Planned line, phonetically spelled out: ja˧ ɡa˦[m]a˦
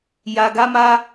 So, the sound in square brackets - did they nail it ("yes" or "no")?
yes